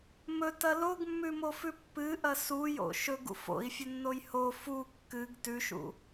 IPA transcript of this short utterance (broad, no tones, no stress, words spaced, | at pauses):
mɵtɐ loɡmːʉmofʉ pːɨʔɐ sujo̰ ʃɵɡṵ fo̰i̯fʲɵnːoj ho fu kːɨɡ tʉʃṵ